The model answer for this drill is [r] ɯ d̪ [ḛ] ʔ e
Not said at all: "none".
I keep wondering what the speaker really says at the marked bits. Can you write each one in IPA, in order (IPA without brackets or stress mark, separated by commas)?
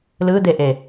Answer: l, e